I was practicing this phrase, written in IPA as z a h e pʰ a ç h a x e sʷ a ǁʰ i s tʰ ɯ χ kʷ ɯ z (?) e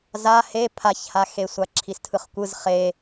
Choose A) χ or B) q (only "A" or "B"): A